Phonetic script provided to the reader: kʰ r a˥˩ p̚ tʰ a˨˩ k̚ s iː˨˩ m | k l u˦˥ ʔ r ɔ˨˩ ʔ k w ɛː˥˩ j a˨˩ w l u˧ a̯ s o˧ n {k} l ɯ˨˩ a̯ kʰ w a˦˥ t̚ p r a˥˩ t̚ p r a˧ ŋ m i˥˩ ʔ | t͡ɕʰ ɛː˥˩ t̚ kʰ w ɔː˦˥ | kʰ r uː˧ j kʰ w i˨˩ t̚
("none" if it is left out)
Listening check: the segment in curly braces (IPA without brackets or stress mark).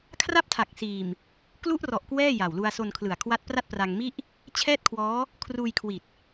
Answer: kʰ